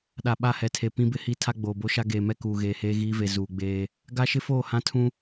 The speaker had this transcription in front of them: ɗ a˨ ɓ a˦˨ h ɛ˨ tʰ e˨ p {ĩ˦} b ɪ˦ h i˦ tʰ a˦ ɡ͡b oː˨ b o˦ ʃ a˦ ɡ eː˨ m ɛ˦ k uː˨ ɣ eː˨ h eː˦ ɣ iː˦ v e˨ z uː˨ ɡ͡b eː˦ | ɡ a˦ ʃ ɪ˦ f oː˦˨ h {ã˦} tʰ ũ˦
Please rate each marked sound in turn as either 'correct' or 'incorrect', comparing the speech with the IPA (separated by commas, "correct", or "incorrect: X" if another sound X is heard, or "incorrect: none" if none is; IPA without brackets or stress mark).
correct, correct